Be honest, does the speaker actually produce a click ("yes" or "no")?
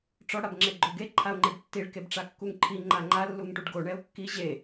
yes